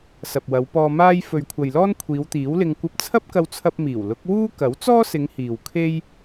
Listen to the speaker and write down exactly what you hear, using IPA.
s ɐ˨ p̚ w ɐ˨˧ w p ɔː˧ m aː˥ j f ɵ˨ ɥ kʷʰ ɐ˨ j l ɔː˥ n kʷʰ iː˨˧ w t̪ iː˨˥ w l ɪ˧ ŋ kʷ ɐ˧ p̚ t͡sʰ ɐ˥ p̚ k ɐ˧ w t͡sʰ ɐ˧ p̚ m iː˨˩ w l ʊ˨˥ k̚ w uː˥ k ɐ˨˥ w t͡s ɔː˥ s ɪ˨˧ ŋ h iː˨ w kʰ e˥ j

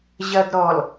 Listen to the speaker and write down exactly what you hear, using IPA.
ʑ ɐ d ɾ ɔ l

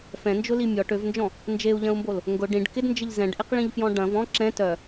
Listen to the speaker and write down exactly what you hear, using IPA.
f ɛ̃ n d͡ʒ ʊ l i mʲ ɔ ʈ ø v n d͡ʒ ɔ̃ | n d͡ʒ e u̯ ʎ ɐ̃ u̯ m b o l | ŋ ɡ ʊ ɖ ĩ ɖ k ɪ d n d͡ʒ ɪ ʎ z ɛ̃ ɖ ʔ ɪ q ɭ ĩ ʎ f j ɔ̃ ɖ ɐ̃ v ɔ̃ ǁ ɛ̃ t œ

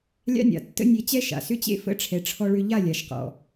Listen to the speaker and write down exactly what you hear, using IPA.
lʲ a̰˦ nʲ a̰˨ tː ə̰˦ nʲ e˧ t͡ɕ ɛ˦ ʃ a̰˨ s ʏ˦ t͡ɕ ḛ˦ f ə̰˦ ʈ͡ʂʰ ɛ˧ ʈ͡ʂʰ ɔ˦ ɭ ʏ˦ ʎ a˦˨ lʲ a˨ ʃ q ɔ̰˨

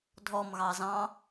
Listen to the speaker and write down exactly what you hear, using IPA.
dʱ ɔ m ɣ ɑ z ɑ̃

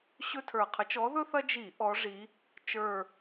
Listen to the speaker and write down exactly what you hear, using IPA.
ɕ ɵ˦ tʰ ə˞˨˩ qʰ ə˨˦ t͡ʃ ɔ˨˦ ð ɵ˦ θ ɐ˦ d͡ʒ i˧˩˧ ʔ ɔ˨˦ ʐ i˨˦ | t͡ʃ ə˞˨˩

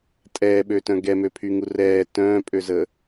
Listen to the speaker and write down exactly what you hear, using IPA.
tʼ ɛː ɓ ø t œ̃ ɡ ɛ m ø pʰ y ŋ u r ɛː t œ̃ː pʼ ø z ə

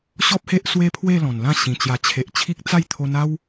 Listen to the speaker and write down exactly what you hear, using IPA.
ɕ ɔ˦ p̚ h e˦ ʔ s w e˦ pʰ w e˥˧ l ɔ̃˨˩ n l ã˥˧ ɕ ĩ˨˩ t͡ɕ j a˨˩ t͡ɕʰ e˨ ʔ t͡ɕʰ i˦ k̚ t͡s a˥˧ j t̪ʰ o˧ n a˦ w

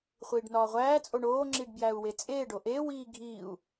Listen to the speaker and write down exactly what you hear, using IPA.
χʷ iː ɖ n ɒː ʁʷ æː t͡sʼ o ɳ oː ŋ͡ǁ i ɖ b j æ u̯ w e t͡sʼ eː ɖ o ʔ e w iː ɡʱ iː u̯

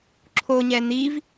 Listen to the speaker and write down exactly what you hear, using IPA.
ǁʰ o ɲ ɛ n̪ i v

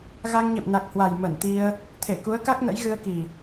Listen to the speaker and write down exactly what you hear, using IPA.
ɣ a˧ ŋ ɲ ḛ˧˨ m n a˨˩ k̚ h w a˨˩ j m ə˧˩ n t̪ i˧ ə̯ | t̪ʰ e˧˩ k u˨˦ ə̯ k a˦˥ k̚ n ə̰˧˥ j ɣ ɨ˧ ə̯ k i˨˩

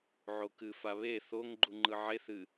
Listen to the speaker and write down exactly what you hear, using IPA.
ʕ o k ɨ f a β e θ o ŋ ɡ͡ǃ u ŋ͡ǃ ɯ ʕ e θ ɨ

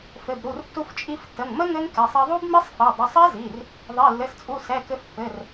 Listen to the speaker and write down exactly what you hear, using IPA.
f ɘ˩˧˩ b ɾ u˩˧˩ r tː u˧ f t͡ʃʼ i˧ f tː ə˩˧˩ ŋ m ə˦˥ ŋ ɘ˦˥ ŋ k ɛ˩˧˩ sˤ ɛ˧ ðˤ u˦˥ b m i˦˥ sˤ f ɛ˩˧˩ dˤ ɘ˩˧˩ sˤ ɛ˦˥ z i˩˧˩ r | ðˤ i˩˧˩ lː ɘ˩˧˩ s t͡sʼ u˩˧˩ s ɛ˩˧˩ k ɘ˧ f pː ɘ˩˧˩ r

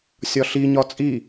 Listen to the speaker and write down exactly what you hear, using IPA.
sʲ ɒ ɬ i ɲ ɒ t͡sʼ i

